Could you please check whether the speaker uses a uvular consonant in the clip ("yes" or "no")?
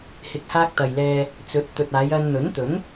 no